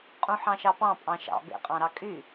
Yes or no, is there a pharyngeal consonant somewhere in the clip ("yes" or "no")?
yes